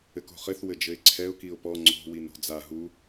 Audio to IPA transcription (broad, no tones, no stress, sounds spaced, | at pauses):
ɘ k o̤ χ ɘ θ w ɘ d͡ʒ ɘ ɪ̯ ǀʰ ɛ ʊ̯ k i ʊ̯ p ɔ ŋ͡ǀ o̤ w i n ɾ o̤ d͡z a ɦ u